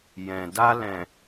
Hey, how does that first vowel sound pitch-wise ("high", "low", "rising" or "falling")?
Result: low